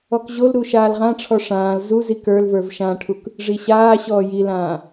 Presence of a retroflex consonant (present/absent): present